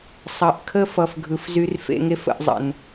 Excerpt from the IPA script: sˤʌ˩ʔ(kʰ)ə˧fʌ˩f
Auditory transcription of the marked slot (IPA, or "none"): kʰ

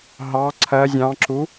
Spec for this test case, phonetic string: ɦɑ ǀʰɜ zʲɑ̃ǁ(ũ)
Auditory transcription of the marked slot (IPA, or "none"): u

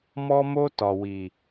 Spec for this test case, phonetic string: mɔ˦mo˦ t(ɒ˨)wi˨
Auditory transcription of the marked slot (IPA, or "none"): ɒ˨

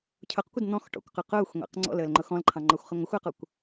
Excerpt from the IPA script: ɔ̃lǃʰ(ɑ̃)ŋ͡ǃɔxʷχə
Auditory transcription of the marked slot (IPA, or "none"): ɑ̃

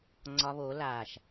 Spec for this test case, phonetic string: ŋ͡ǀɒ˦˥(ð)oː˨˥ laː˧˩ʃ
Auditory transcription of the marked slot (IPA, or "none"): β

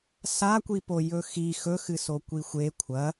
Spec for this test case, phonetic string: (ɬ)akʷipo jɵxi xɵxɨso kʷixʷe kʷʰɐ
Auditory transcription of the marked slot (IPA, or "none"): s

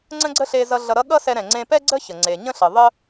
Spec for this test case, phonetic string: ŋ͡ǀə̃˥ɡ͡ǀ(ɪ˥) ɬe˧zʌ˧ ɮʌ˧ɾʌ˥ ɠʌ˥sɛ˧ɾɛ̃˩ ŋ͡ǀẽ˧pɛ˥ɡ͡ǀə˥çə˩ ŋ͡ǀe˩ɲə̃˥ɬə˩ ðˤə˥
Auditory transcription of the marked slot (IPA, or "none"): ə˥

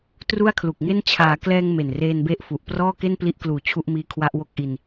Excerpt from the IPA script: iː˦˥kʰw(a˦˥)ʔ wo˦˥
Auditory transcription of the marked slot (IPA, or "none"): a˦˥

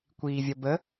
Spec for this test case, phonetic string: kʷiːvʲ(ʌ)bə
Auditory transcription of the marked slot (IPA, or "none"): ʌ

